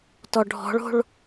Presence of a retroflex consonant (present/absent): present